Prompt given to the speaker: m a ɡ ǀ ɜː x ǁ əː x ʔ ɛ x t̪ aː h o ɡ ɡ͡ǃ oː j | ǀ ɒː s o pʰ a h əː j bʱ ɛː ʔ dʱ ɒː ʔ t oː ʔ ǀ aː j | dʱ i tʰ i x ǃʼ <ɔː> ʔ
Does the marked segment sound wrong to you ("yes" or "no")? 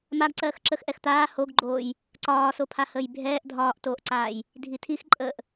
yes